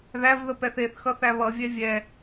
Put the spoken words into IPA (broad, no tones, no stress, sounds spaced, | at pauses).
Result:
ð æ v ð ə p ɛ θ e θ x ʌ θ æ β ʌ vʲ ɛ vʲ ɛ